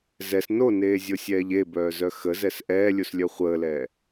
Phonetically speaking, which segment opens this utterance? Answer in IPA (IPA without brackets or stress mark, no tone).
z